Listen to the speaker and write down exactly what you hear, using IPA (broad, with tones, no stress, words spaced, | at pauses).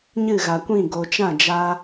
ɲɨ˦˨ɣa˨kʷĩ˦˨ ɡo˨t͡ʃã˦˨d͡ʒa˧